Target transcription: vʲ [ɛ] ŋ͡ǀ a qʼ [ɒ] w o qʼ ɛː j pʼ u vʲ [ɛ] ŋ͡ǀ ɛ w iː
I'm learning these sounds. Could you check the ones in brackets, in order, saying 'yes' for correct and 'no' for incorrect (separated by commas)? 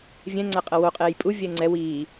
no, no, yes